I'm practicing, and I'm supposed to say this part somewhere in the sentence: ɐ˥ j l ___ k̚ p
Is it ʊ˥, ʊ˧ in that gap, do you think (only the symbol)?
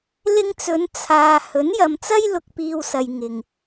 ʊ˧